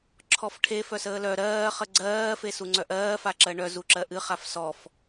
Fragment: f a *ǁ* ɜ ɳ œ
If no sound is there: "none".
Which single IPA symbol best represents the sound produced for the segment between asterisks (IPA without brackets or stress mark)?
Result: ǁ